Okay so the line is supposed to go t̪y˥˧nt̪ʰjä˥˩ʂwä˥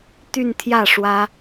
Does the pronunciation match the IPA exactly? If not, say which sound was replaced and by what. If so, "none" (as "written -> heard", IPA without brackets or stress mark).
none